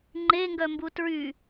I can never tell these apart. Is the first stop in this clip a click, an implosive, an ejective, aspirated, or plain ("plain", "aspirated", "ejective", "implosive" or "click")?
click